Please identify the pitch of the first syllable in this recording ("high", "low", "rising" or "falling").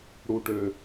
low